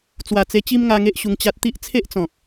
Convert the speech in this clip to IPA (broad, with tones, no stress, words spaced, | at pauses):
t͡swa˨˩t͡se˧ t͡ɕi˦mŋa˧ŋe˦ʔ ɕu˧ŋt͡ɕa˦t̚ t̪i˦ʔt͡sʰe˦ʔt͡sɔ̃˨k̚